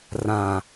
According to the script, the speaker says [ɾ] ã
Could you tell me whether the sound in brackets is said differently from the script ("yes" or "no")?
yes